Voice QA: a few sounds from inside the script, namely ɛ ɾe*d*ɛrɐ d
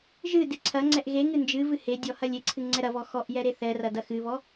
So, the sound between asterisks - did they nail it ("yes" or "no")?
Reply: no